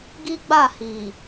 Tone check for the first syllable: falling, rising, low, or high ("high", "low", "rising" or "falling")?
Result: high